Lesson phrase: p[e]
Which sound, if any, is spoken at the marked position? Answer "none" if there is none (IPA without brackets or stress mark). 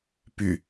y